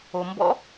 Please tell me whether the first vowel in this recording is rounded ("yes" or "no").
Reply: yes